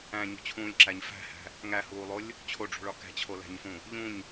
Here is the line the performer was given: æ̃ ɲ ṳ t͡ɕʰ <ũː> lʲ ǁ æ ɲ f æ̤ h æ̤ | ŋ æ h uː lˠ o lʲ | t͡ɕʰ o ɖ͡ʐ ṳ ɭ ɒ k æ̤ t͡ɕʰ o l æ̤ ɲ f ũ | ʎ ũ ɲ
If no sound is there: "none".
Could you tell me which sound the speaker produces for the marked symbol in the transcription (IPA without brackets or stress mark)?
ũː